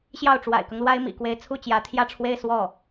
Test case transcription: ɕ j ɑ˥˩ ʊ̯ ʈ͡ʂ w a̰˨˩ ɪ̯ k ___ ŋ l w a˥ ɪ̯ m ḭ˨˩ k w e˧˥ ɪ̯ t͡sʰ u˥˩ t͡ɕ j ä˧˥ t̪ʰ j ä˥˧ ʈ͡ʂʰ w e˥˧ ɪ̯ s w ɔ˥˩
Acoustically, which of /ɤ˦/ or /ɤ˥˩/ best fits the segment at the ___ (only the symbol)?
ɤ˦